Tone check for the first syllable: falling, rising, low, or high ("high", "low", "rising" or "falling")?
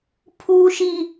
high